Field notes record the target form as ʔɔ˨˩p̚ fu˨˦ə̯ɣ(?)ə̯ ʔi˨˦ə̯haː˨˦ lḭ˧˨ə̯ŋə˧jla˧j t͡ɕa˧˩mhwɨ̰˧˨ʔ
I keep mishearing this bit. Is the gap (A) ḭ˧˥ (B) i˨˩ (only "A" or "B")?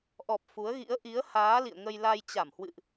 A